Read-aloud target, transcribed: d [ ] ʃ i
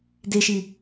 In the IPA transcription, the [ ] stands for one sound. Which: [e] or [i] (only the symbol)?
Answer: e